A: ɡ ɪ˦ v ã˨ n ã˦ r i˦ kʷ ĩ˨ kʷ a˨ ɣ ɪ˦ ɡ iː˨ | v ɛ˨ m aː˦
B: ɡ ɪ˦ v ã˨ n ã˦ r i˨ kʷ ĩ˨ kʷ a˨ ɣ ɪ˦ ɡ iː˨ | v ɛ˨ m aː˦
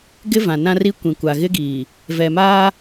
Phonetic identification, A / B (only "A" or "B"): A